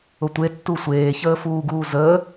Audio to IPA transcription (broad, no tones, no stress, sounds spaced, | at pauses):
ʊ tʷ e tː u sʷ eː ç əː f uː ɡ uː z əː